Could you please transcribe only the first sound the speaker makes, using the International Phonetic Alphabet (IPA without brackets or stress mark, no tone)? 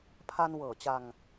pʰ